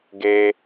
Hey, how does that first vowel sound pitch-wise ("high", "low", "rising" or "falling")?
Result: high